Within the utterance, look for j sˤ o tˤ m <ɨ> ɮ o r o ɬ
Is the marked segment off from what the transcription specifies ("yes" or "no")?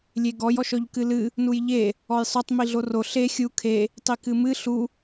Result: yes